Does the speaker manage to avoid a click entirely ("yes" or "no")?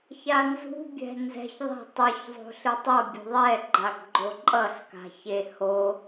no